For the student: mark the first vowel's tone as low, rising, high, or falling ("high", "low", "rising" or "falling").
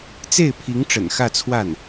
falling